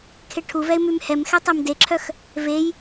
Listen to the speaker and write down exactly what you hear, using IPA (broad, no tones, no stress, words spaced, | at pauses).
kʰeʈʰuvɛɪ̯ mymhɛmxɛ tˤemdeǁʰœx | vej